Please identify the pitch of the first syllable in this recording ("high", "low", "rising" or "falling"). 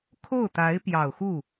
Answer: falling